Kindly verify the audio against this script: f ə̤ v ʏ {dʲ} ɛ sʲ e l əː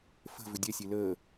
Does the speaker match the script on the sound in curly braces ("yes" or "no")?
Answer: yes